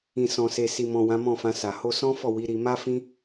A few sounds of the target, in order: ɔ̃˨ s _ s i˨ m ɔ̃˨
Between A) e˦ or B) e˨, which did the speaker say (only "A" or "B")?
B